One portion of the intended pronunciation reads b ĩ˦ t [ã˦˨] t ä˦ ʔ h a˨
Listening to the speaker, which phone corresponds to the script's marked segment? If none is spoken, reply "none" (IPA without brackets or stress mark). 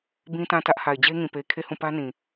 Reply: ã˦˨